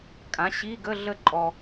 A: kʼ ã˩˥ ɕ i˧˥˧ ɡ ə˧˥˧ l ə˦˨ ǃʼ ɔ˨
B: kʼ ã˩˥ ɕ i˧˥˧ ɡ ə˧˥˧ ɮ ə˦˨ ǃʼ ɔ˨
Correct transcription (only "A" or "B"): B